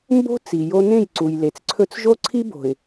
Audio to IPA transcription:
m b o̤˦ t͡s i˨ j o˦ n ẽ˦˨ j ǀ u˨ j l e˨ t͡s ǀʰ ɵ˦ t͡s ʒ o˦ ǀʰ i˦ b o̤˨ ɪ̯

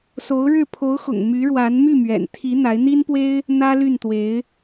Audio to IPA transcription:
s o˧˥ ʊ̯ ɻ ɻ̩˥˩ pʰ o˧˥ ʊ̯ x ʊ̰˨˩ ŋ m y˧˥ ɻ w a˧˥ n m y˥˩ m ɥ ɛ̰˨˩ n t̪ʰ i˧˥ n̪ a˧˥ ɪ̯ n̪ i˥ n p w e˥ ɪ̯ | n̪ ä˥ l y˥˩ n t̪ w e˧˥ ɪ̯

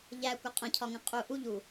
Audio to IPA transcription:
ʎ æ kʷ ə qʼ ə̃ cʰ ɒ ŋ ə̃ qʼ u ʔ u ʎ u

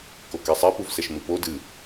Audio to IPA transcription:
k o k ɛ sˤ ɛ p u v s ɛ ʃ m ɨ p o d ɨ

